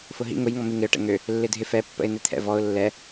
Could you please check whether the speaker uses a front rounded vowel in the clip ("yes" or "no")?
yes